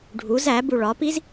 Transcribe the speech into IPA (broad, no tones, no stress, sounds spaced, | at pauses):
ɖʱ u z æ b u ɭ ɒ p i z